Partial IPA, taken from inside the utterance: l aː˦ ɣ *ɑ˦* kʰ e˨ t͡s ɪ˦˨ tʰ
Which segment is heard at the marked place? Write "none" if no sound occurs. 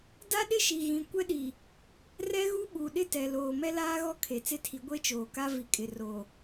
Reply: ɔ˦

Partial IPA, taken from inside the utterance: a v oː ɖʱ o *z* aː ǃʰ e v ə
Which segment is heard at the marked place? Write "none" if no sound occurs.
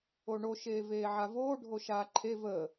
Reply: ʃ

